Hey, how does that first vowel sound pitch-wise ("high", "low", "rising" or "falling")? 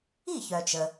falling